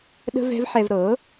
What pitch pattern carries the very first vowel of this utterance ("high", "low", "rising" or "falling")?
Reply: high